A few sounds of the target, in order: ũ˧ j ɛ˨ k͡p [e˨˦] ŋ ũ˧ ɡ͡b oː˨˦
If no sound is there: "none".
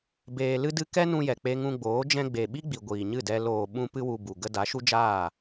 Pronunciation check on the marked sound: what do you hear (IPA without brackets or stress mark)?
e˧